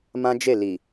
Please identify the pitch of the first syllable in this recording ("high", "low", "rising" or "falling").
high